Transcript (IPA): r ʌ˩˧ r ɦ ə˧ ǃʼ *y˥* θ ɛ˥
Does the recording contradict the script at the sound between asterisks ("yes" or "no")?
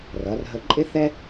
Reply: yes